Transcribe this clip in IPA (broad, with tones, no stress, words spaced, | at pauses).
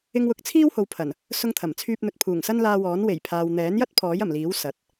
ɪ˧ŋwʊ˨˥k̚ t͡sʰiː˥who˨wpʰɐ˨˩n | sʊ˥ŋt̪ʰɐ˨˩mt͡sʰyː˥p̚n̪ɵ˧t̚ pʰuː˨˩ŋsɐ˥nlaː˧wɔː˨˥n we˨˩jpʰaː˨w n̪ɛː˨˥njɐ˥t̚ pʰɔː˨˥jɐ˨˩mliː˨˥w sɐ˨˥t̚